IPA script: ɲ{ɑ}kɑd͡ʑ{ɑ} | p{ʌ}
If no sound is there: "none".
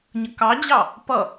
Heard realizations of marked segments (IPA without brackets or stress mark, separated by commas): ə, ɑ, ʌ